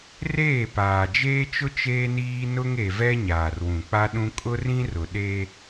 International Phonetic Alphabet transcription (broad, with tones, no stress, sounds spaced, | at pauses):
r eː˦˨ p aː˨ d͡ʒ eː˦ t͡ʃ ʊ˦ t͡ʃ eː˦ n iː˦ n ʊ˦ ŋ e˨ v ɛ˦ ɲ aː˨ r w ũ˨ k͡p a˦ ɗ ũ˦ kʼ ʊ˦ r ĩ˦ r ʊ˨ ɗ e˦